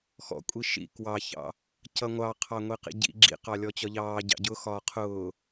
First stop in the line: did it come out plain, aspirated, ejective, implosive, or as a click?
ejective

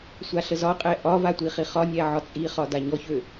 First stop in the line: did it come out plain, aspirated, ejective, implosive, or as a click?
ejective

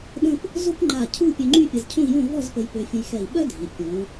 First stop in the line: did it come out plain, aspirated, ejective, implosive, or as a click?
implosive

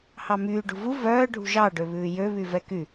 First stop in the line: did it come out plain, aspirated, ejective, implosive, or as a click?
plain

